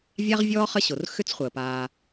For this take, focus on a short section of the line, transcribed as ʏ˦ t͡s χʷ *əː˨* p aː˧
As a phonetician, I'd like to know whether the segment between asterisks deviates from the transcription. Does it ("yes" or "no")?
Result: no